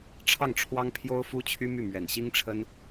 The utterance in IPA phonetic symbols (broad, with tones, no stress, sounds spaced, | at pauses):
ʈ͡ʂʰ ɑ˥˩ ŋ ʈ͡ʂʰ w ɑ˥ ŋ pʰ j o˥ ʊ̯ f u˥ t͡ɕʰ y˥ m y˥˩ m ɥ ɛ˨˩ n ɕ i˥ ŋ ʈ͡ʂʰ ə˥ n